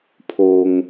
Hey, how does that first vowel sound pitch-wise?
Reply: low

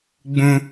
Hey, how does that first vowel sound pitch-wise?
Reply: high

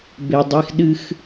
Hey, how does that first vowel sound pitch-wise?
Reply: low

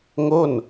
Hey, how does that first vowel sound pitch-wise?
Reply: falling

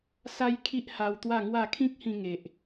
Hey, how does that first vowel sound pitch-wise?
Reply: high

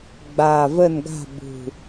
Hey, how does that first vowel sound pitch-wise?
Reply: low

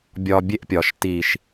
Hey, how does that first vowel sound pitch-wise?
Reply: low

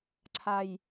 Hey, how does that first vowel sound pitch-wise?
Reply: low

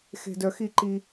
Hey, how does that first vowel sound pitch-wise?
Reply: low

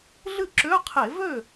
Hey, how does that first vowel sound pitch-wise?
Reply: falling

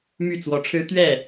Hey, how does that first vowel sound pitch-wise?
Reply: falling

